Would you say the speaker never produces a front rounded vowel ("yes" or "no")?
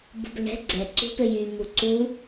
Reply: no